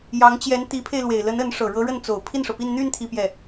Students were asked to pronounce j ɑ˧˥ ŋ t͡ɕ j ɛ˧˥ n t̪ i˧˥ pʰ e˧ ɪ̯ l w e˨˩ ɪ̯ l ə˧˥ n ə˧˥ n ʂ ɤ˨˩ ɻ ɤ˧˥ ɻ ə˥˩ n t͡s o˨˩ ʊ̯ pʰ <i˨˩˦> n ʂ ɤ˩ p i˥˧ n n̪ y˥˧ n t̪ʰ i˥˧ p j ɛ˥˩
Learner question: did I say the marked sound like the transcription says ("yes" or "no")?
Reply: no